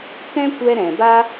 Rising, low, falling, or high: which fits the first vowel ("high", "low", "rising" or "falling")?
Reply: high